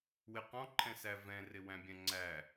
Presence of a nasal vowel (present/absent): present